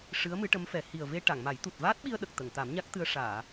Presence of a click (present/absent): absent